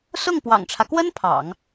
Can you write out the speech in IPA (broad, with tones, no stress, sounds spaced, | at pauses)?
s ʊ˥˩ ŋ p w ɑ̰˨˩ ŋ ʈ͡ʂʰ ä˦ k w ə˥ n pʰ ɑ̰˨˩˦ ŋ